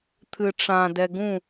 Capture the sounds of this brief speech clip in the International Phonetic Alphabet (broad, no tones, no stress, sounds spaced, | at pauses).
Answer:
t̪ʰ ɨ ʈ͡ʂ ã d ɛ ɡ ũ